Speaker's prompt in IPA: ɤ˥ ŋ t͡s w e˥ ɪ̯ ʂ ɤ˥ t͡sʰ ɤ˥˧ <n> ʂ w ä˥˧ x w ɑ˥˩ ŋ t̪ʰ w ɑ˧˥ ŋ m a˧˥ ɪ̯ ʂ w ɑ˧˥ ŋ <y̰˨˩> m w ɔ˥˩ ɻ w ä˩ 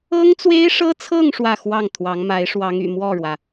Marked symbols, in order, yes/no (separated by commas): no, yes